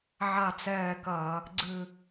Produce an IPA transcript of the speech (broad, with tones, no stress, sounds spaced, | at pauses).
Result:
ʕ a˦˨ t͡s ɛː˦˨ k ɐː˧˩˧ | ɡ͡ǀ ɨ˦˨